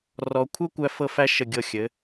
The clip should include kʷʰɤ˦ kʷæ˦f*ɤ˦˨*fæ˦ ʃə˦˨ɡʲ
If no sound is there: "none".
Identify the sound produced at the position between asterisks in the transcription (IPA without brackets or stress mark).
ɤ˦˨